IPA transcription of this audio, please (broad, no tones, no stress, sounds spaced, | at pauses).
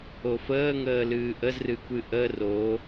o f əː ŋ əː l ɨː ʔ ə z r ɨ kʷ ɨ ʔ ə r o